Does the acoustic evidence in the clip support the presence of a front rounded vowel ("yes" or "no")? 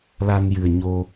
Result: no